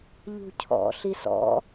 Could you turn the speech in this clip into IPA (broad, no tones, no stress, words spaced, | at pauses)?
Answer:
ʎṳcʰɔ̰ɬis ɔ̰